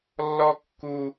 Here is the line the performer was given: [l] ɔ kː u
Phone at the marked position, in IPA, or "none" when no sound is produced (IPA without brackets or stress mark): lː